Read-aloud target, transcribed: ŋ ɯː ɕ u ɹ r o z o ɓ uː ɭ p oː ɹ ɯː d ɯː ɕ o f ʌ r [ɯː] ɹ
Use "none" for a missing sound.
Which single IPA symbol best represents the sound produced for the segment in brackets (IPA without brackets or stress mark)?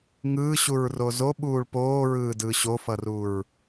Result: uː